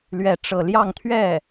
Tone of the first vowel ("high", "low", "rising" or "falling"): falling